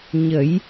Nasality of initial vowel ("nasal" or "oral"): oral